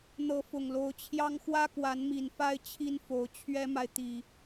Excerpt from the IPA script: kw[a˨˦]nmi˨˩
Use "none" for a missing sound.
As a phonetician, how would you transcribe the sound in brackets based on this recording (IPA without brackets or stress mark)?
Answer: a˨˦